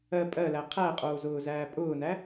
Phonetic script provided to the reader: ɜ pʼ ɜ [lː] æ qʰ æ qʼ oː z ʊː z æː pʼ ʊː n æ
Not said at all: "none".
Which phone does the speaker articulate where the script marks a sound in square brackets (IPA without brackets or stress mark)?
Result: l